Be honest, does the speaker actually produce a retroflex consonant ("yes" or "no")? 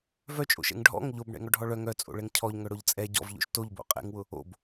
yes